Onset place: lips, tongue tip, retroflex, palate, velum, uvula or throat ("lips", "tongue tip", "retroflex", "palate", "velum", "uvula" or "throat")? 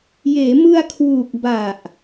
palate